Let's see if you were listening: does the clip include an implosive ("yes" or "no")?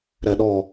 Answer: yes